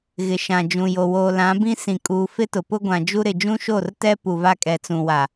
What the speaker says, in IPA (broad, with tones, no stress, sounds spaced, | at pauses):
ɣ ɪ˨ ʃ ã˨ d͡ʒ ũ˨ j o˨ w oː˨ l ã˨˦ b ĩ˦ s ĩ˨ kʼ uː˨ f ɪ˦ t ʊ˨ p ʊ˦ ɡʷ ã˨ d͡ʒ u˦ ɾ ɪ˨ d͡ʒ ũ˦ ʃ o˦˨ r t ɛ˦ p u˨ v a˦ kʼ ɛ˨ t͡s ũ˨ w a˨